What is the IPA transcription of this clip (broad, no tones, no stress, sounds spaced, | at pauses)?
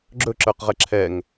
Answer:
ɡ͡ǁ ɵ ǁ ə˞ q ʁ ɛ ǁʰ ɛ ŋ